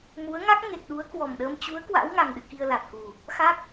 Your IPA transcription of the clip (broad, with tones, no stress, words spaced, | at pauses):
mu˨˦ə̯ŋa˦˥k̚ ŋe˨˩k̚ɗu˨˦ə̯ kwɔ˨˩mɗəː˧m t͡ɕu˨˦ə̯ kwa̰˧˥wŋa˨˩ŋɗɨ̰˧˨ ki˧ə̯la˨˩t̚ku˨˩ | xa˦˥k̚